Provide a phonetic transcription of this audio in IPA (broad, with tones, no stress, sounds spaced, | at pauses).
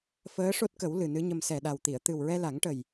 f əː˧˥ ʂ o˦˥ t̚ k ə˨˩˦ w l ɨ˨˩ n ɨ˧˥ ɲ ə˧ m s ɛ˨˩ ɗ a˨˩ w t̪ i˨˩˨ ə̯ t̪ ɨ˨˩ w ɹ ɛ˧ l a˨˩˦ ŋ ʈ ə˨˩ j